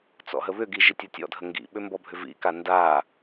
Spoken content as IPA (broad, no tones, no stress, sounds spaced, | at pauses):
t͡s ɔ̰ ɦ ə β ʏ ɡ i ʒ i tʲ ɤ tʲ ɔ̰ dʱ ə ŋ ɡ ḭ ɓ ʏ m b ɔ bʱ ʏ v ḭ k a n d a